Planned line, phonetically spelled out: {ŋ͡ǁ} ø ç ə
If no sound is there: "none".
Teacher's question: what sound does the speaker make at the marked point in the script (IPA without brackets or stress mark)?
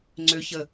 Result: ŋ͡ǀ